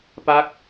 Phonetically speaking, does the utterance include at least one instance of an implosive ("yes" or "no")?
no